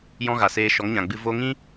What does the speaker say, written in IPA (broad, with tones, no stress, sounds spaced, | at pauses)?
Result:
j ɔ̃˦ ɣ a˨ s eː˧ ʃ ɔ˨˦ ŋ ɲ ã˨ ɡ͡b ɨ˧ v o˧ ŋ ĩ˦